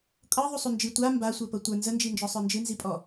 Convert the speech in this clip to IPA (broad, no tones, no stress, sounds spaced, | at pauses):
kʼ ɤ ðˤ u sˤ u n d͡ʒ i tʷ a m b a sʷ ə˞ p ɤ tʷ ə˞ n z ə n d͡ʒ i n d͡ʒ ɔ sˤ ə˞ n d͡ʒ ɨ n z i pʼ ɔ